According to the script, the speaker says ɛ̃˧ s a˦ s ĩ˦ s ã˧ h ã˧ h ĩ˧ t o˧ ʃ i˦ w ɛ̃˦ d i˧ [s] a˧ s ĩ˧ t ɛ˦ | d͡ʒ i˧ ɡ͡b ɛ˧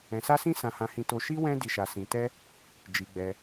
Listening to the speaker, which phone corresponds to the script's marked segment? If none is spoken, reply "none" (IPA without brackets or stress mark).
ʃ